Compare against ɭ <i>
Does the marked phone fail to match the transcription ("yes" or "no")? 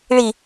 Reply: no